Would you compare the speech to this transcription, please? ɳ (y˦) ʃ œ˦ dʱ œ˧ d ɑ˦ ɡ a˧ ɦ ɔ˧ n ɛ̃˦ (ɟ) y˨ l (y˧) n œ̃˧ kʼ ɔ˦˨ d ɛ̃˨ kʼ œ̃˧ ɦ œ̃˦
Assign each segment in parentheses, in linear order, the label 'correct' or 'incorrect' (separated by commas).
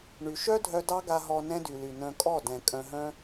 incorrect, incorrect, incorrect